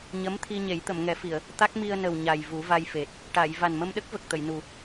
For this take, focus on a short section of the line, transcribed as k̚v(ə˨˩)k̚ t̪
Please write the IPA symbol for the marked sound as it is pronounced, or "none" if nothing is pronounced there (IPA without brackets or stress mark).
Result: ə˨˩